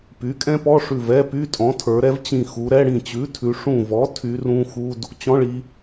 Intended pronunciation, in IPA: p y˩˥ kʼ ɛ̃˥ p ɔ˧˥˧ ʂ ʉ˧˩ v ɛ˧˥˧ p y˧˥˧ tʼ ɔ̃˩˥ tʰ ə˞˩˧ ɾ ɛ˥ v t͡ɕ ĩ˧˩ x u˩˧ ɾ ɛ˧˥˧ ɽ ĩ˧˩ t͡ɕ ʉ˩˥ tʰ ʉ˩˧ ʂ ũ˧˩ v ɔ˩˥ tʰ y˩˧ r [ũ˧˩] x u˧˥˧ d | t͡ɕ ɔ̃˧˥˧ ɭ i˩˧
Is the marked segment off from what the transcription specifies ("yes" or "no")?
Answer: yes